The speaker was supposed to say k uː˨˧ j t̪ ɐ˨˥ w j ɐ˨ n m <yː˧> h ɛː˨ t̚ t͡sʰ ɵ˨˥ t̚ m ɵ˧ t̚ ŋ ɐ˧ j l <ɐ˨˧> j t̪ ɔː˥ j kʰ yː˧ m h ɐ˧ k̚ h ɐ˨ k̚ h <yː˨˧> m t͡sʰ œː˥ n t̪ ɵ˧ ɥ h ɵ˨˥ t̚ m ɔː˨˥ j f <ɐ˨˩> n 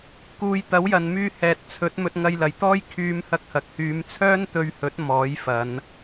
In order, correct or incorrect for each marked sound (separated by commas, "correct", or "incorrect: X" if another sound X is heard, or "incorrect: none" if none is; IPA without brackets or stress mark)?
correct, incorrect: ɐ˨, correct, incorrect: ɐ˨˧